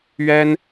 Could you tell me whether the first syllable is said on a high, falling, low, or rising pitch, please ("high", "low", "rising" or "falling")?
high